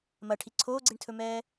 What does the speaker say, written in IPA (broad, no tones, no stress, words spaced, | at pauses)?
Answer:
mɐʈʰi ǀʰoːɡ͡ǀiɳtʰɵmɛː